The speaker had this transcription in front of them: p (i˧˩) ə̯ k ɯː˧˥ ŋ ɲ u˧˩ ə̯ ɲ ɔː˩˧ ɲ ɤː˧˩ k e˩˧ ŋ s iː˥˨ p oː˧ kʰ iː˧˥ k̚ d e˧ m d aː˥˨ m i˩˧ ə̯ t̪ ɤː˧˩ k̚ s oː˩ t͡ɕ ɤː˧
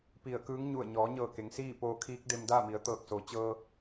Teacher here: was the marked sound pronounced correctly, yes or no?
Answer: yes